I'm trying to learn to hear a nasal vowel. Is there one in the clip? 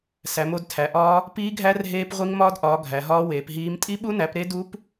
no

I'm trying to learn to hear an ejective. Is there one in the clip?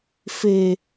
no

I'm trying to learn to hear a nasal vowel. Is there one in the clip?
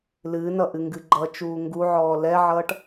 no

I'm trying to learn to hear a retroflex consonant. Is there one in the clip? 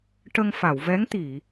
yes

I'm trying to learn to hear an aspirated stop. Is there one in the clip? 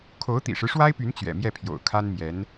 yes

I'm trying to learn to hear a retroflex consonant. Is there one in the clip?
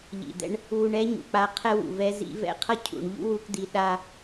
yes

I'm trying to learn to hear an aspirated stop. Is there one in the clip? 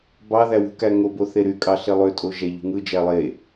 no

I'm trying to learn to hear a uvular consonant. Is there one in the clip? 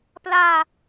no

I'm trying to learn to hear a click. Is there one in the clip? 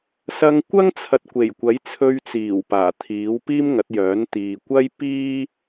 no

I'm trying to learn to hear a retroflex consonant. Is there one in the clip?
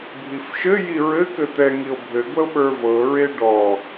yes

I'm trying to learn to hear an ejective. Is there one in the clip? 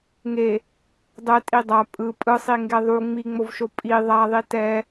yes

